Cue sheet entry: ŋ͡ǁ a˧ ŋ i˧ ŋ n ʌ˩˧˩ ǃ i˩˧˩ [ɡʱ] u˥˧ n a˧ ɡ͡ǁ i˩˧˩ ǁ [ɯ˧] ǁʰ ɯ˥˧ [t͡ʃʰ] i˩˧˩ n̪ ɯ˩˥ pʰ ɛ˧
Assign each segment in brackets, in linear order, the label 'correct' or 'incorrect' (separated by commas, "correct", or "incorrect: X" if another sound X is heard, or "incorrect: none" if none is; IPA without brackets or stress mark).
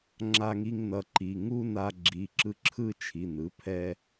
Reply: incorrect: ŋ, correct, correct